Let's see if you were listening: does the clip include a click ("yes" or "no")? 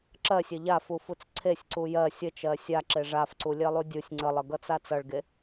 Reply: yes